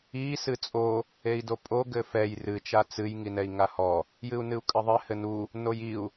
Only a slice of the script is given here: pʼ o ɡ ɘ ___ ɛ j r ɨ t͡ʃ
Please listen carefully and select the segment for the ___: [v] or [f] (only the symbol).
f